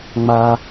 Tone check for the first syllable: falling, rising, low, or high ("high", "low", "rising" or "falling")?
high